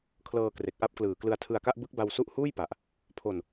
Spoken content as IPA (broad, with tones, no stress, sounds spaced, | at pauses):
kʰ l ɤː˧ k r e˨˩ k̚ ʔ a˦˥ p̚ k l ɯː˨˩ k l ɯ˧ a̯ tʰ ɯ˧ a̯ k a˥˩ ʔ b ɯ˦˥ k̚ b a˧ w s u˦˥ ʔ h uː˥˩ j p a˨˩ ʔ | pʰ o˧ n